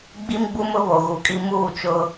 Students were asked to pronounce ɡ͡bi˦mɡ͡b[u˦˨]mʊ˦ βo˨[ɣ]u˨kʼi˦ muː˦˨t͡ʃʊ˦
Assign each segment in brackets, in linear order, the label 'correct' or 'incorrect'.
incorrect, correct

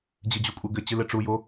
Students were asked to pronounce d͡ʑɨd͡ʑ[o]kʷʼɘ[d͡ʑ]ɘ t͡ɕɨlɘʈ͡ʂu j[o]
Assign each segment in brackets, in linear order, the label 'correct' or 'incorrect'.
incorrect, incorrect, correct

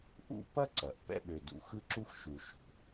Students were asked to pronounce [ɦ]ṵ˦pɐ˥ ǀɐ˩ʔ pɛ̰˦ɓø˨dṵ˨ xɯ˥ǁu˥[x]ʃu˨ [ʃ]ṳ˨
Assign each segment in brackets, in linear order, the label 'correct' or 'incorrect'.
incorrect, correct, correct

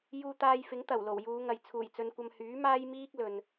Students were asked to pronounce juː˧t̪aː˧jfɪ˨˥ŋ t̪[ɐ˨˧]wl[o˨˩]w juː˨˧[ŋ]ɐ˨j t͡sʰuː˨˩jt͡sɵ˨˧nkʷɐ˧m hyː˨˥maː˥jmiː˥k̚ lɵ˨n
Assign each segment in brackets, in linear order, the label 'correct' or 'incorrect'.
incorrect, correct, correct

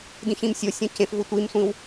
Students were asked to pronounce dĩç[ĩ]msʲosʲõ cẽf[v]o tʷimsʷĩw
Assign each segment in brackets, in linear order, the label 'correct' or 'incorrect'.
correct, correct

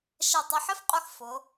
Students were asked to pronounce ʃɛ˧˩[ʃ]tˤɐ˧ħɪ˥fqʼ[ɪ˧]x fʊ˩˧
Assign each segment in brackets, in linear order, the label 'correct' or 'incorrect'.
incorrect, incorrect

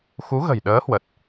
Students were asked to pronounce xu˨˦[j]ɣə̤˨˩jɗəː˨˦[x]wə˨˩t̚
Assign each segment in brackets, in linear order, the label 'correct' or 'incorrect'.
incorrect, incorrect

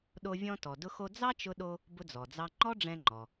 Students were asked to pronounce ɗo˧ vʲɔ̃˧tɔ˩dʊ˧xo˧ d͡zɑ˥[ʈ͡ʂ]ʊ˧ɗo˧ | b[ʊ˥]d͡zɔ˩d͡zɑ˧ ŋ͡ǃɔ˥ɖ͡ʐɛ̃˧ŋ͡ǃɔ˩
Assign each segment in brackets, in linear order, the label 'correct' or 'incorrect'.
incorrect, incorrect

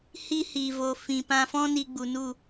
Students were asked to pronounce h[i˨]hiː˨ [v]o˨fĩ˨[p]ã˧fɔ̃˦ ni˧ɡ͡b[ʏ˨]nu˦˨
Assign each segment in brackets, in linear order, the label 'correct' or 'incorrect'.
incorrect, correct, correct, incorrect

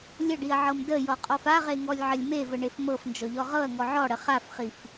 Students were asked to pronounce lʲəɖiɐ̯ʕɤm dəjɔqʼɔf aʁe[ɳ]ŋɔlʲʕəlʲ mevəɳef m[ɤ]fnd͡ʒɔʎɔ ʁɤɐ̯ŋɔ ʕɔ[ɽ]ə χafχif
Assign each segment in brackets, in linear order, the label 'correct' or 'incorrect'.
incorrect, correct, correct

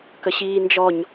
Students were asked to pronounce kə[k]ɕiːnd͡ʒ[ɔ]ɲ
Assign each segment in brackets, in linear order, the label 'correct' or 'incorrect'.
incorrect, correct

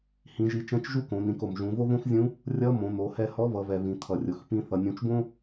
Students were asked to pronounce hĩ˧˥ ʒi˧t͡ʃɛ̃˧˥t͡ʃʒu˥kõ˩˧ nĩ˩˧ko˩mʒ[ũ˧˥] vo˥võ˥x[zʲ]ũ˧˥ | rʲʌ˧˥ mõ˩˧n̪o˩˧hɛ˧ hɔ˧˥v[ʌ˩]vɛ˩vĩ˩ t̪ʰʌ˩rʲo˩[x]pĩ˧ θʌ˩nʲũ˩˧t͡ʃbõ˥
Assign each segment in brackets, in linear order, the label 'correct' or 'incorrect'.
incorrect, correct, incorrect, correct

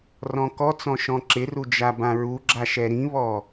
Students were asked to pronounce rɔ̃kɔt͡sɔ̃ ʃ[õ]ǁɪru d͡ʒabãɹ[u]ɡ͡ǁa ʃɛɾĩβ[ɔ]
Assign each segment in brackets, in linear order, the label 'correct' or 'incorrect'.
incorrect, correct, correct

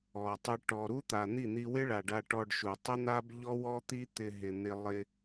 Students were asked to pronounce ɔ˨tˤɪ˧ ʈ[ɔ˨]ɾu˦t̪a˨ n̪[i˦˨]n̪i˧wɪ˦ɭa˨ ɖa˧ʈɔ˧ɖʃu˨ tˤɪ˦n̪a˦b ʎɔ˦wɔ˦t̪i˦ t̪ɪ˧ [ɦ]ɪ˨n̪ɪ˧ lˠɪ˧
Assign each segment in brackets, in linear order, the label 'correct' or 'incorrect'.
correct, correct, correct

